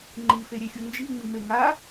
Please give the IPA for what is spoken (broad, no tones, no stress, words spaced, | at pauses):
ŋ͡ǃifeɾʲexʲu nd͡ʒiŋ͡mime ŋa